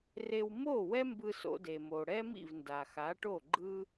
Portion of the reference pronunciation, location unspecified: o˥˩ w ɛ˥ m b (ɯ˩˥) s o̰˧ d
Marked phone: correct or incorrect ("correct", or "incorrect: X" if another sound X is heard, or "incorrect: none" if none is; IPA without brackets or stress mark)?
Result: incorrect: ɯ˧